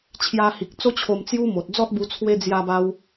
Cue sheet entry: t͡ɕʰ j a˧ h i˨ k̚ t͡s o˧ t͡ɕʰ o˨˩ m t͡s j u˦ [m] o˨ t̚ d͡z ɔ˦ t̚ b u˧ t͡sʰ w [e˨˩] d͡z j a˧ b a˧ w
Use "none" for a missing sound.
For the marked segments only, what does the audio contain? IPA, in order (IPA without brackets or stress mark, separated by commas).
m, e˧